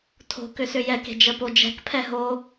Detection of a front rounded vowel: present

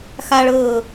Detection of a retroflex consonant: present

